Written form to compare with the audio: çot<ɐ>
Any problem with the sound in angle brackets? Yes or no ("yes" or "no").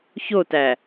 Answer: yes